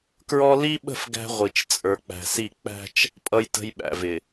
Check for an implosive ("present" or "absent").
present